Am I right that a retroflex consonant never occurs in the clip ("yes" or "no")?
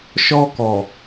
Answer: yes